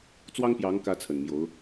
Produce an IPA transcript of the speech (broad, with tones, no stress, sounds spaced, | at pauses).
t͡s w ɑ˥ ŋ p j ɑ˧˥ ŋ k ä˧˥ t͡sʰ ə˨˩ n m j o˧˥ ʊ̯